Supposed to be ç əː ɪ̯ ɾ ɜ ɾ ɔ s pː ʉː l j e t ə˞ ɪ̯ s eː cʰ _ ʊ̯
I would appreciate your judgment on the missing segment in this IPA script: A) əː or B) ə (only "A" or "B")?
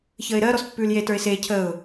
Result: A